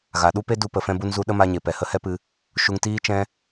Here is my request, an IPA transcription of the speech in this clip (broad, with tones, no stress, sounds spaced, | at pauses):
ɣ a˨ ɗ u˦ p e˦ d u˧ p ə˨ f ɛ̃˧ b u˧ n z u˧ ɗ ə˦ m a˧ ɲ e˨ p ɛ˨ h ə˦ h ɛ˦ p ɨ˧ | ʃ u˧ ŋ t iː˦ t͡ʃ ɛ̃˦